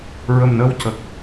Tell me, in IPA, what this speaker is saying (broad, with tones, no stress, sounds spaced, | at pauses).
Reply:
ɹ ə˨˩ m n əː˧˥ w c ə˨˩ k̚